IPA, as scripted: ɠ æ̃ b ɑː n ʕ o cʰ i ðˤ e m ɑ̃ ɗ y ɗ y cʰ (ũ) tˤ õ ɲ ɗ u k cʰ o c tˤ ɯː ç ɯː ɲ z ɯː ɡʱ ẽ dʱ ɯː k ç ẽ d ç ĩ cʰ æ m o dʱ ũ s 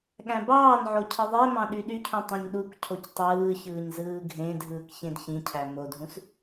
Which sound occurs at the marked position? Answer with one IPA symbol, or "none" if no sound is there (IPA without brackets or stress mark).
ũ